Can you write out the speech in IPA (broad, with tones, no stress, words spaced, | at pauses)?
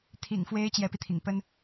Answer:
t̪ʰḭ˨˩ŋfwe˧˥ɪ̯ t͡ɕjɛ˧˥pi˧t̪ʰḭ˨˩ŋ pə˥n